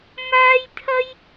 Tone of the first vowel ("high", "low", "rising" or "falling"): high